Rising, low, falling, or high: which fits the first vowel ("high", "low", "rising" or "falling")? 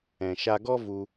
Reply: low